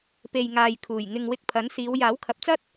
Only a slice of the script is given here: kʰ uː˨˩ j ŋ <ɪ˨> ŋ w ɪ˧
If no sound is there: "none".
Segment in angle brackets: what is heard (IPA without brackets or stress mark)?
ɪ˨